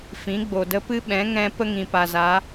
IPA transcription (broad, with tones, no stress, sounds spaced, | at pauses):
f ĩ˨˦ ɡ͡b o˨ d ə˦ p ɨ˦ ɓ ɛ̃˨˦ ŋ ɛ̃˦ p ə˦ ŋ ĩ˨ p a˨ z a˨˦